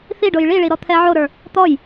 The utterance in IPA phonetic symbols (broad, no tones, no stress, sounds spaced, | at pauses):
θ i ɖ o j ɭ i ɭ i ɾ ɔ t̪ʰ ɛ ʕ o ɾ ə˞ | t̪ ɔ j